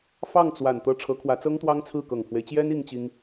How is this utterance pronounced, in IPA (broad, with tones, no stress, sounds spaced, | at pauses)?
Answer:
f ɑ˥˩ ŋ t͡s w a˨˩ n t̪ ɤ˥˩ ʈ͡ʂʰ ɤ˧˥ kʰ w ä˧˥ t͡s ɤ˥ ŋ t̪ w ɑ˥ ŋ t͡sʰ ɹ̩˥˩ k ɤ˨˩ ŋ pʰ w e˦ ɪ̯ t͡ɕ j ɛ˥ n i˥ ŋ t͡ɕ i˥ ŋ